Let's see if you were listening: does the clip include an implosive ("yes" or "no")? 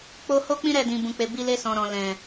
no